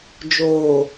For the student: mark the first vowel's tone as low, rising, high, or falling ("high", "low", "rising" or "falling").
low